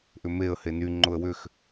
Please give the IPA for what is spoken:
ʔ ʏ m e ə̯ h e n y ŋ͡ǃ ʊ ə̯ w ʏ x

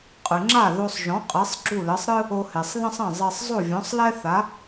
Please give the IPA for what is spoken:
qʼ ɨ˩ ŋ͡ǁ a˥˩ ð o˧ sˤ ʒ ɔ̃˩˥ qʼ e˩˥ sˤ ɡ͡ǁ u˥˩ l ɘ˩˥ sˤ ɾ ɨ˥ | o˧ h e˩ sˤ ð ɐ̃˥ sˤ ɐ̃˥˩ zˤ e˧ sˤ zˤ o˥˩ vʲ ɔ̃˩˥ sˤ l ɛ˥ θ a˩˥

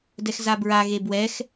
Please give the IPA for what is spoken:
d ɛ x z a b ɹ a ɣ e b w ɛ x

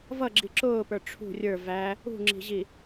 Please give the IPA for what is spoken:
v ʌ ɡ͡ǁ i ǁ ʊː p ə˞ ʈ͡ʂʰ ṳ rʲ ə˞ v æ | ṳ ŋ͡ǁ i̤ ʑ i

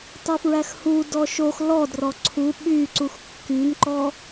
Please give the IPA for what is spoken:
tˤ u f ɹ æ x h u d ɔ ʃ o x l ɔ d r ɔ ǀʰ u ɓ y ǀ u x kː y n ǃ ɔ

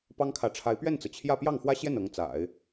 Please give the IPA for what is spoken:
p ɑ˥ ŋ kʰ ä˧˥ ʈ͡ʂʰ a˧˥ ɪ̯ p ɥ ɛ˥˩ n t͡s ɤ˩ t͡ɕʰ j ä˥˧ p j ɑ˥˩ ŋ x w ä˥ ɕ j ɛ˥˩ n ɤ˧˥ ŋ t͡s a̰˨˩˦ ɪ̯

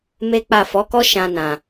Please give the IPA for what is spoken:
m e˦ k͡p a˦˨ f ɔ˨˦ k ɔ˦ ʃ ã˧ n ã˨

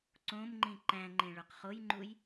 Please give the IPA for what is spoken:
ǀ õ m ŋ͡ǃ ĩ ǃ æ̃ ŋ͡ǃ ẽ ɭ o q χ o j ŋ͡ǃ u j

